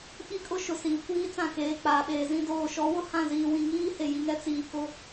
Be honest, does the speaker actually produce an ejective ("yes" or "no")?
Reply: yes